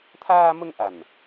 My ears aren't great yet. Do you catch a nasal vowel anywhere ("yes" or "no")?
no